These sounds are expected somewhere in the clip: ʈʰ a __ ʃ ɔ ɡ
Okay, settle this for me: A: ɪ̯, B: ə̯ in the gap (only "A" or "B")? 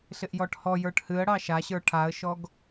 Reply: B